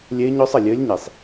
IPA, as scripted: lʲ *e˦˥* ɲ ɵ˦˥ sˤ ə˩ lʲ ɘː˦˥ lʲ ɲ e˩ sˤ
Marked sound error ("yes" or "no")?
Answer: no